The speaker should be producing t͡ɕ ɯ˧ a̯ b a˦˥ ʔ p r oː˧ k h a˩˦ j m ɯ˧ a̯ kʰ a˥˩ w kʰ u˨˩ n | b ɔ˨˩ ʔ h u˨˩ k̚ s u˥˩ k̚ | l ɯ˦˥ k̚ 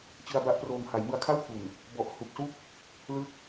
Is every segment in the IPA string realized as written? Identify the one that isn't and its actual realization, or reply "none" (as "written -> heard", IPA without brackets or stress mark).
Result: k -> ŋ